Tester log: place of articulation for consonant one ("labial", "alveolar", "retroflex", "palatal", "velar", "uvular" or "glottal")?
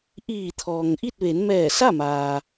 glottal